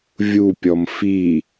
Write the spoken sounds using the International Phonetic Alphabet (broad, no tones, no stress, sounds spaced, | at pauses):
vʲ u pʲ ɔ m f i